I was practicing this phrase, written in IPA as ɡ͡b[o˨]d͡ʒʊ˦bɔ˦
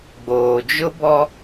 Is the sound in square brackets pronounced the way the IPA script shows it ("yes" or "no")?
no